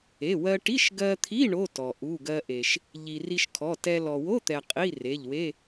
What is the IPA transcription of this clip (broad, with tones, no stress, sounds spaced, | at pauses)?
e˩˧˩ w ɜ˧ ʈ i˧˥˧ ʃ ɡ ɜ˧ t̪ʰ i˧˥˧ ɳ o˧˥˧ t ɔ˩ ʔ u˩˧˩ ɡ ɜ˧ ʔ e˩ ʃ | ʎ i˩ r i˧ ʃ kʰ ɔ˩˧˩ t ɛ˧ l ɔ˩ w o˧˥˧ t̪ ɛ˩ qʼ i˧˥˧ r e˩˧˩ ʎ w e˧˥˧